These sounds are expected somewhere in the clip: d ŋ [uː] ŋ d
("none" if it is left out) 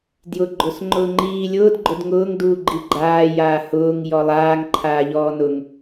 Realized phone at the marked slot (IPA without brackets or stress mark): ʊː